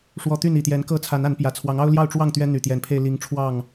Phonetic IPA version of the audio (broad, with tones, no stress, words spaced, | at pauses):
ʂwɔ˨˩ t̪y˥˨ni˨˩t̪jɛ˨˦nkɤ˥˨ t͡sʰa˨˦na˨˦npjä˨˩t͡sʰwɑ˨˦ŋ ɑ˦ʊ̯ljɑ˥˨ʊ̯ʈ͡ʂwɑ˥˨ŋ t̪ɥɛ˦n̪y˨˩t̪jɛ˨˦npʰe˧ɪ̯ li˨˦ŋʈ͡ʂʰwɑ˥˨ŋ